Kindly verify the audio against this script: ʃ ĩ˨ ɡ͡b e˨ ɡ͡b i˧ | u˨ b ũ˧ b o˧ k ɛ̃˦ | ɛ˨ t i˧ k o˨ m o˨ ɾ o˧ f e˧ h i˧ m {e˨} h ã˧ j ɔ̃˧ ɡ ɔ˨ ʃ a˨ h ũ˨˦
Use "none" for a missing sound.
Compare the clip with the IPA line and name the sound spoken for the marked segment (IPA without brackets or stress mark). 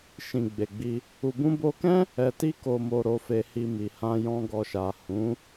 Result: i˨